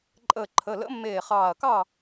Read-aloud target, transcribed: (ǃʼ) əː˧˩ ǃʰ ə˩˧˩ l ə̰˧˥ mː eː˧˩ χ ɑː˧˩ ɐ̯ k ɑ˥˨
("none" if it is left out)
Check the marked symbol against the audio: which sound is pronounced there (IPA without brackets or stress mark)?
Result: ǃʼ